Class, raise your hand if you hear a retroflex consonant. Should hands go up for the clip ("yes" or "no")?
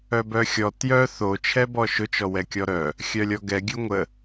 no